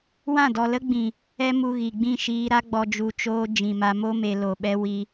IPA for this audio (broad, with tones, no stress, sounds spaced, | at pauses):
w ã˦˨ d ɔ˨ l ə˦ ɡ͡b ĩ˨ | ɛ˧ m u˨ ɣ i˨ ɡ͡b ĩ˦˨ ʃ iː˧ ɾ a˦ ɡ͡b ɔ˧ d͡ʒ u˨ t͡ʃ oː˧ d͡ʒ ĩ˨ m a˧ m o˦ m e˧ l o˨ ɓ ɛ˧ w i˧